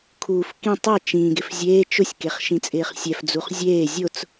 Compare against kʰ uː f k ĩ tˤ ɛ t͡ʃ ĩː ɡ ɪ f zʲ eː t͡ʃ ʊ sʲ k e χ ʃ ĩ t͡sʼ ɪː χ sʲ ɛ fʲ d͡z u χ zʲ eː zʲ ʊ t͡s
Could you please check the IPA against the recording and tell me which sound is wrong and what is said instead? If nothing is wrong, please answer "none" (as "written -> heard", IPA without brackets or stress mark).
fʲ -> f